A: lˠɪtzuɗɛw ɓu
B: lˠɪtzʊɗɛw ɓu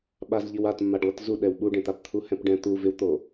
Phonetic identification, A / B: A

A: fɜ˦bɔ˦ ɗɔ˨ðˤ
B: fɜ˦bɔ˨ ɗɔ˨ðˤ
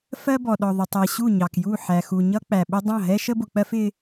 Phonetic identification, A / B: B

